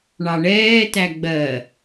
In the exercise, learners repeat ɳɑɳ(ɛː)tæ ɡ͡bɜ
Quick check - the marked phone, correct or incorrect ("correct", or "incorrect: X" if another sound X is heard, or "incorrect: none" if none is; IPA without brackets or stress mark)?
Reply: correct